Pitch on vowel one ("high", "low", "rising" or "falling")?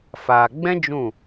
low